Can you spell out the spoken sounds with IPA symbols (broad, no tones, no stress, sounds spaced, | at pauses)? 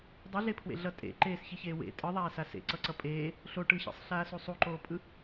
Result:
dˤ i ɮ e pʰ w ḛ ɮ ʌ tʼ ḛ ǃ eː s ç i ç eː w ḛ tʼ ɯ ðˤ aː s a s ḛ ǀ ʌ ǀ ʌ pʼ eː | ɬ o ʈ ɯ ç ḛ sˤ ɬ aː s u sˤ u ǃ oː pʼ ɯ